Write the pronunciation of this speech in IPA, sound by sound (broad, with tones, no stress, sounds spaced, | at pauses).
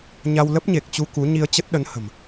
ɲ a˧ w l ə˦˥ p̚ ɲ e˨˩ k̚ t͡ɕ u˧ k u˨˦ ɲ i˧ ə̯ t͡ɕ ə˦˥ t̚ ɗ ə˨˦ n h ə̤˨˩ m